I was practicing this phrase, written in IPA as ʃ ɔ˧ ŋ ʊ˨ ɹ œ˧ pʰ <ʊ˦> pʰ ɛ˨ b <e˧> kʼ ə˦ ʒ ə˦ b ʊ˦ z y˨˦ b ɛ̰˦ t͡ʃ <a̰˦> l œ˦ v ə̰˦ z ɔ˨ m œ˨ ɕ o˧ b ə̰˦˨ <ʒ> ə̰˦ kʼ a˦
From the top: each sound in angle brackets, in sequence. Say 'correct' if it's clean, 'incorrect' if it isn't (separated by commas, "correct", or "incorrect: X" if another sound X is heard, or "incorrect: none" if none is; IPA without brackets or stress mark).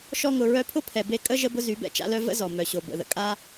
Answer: correct, correct, correct, incorrect: ð